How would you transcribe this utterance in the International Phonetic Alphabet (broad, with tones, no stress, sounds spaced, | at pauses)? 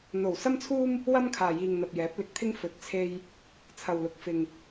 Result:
n̪ o˨˩ w s ɐ˥ m t͡sʰ uː˥ m | w ɐ˥ m kʰ aː˨ j iː˨ ŋ n̪ ɐ˨ p̚ j ɛː˨˥ p̚ l ɪ˨˥ k̚ t̪ʰ ɪ˥ ŋ f ɵ˨ t̚ t͡sʰ e˧ j | t͡sʰ ɐ˨ w l ʊ˨ k̚ f ɪ˨ ŋ